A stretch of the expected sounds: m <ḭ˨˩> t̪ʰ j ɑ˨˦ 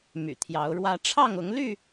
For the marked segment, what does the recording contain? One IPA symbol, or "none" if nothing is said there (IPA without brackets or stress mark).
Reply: y̰˨˩